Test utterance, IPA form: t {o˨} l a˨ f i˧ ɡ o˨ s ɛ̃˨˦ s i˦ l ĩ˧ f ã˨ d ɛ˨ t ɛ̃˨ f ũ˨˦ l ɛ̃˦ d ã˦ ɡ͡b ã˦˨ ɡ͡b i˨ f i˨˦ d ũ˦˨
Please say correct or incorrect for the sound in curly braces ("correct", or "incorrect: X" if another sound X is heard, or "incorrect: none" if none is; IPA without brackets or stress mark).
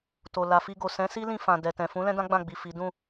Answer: correct